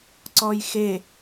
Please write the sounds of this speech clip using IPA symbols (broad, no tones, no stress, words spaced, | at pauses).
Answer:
ǀɔjxe